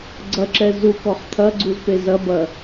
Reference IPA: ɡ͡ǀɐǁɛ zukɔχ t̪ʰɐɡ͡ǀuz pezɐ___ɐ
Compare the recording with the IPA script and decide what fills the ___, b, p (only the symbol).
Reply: b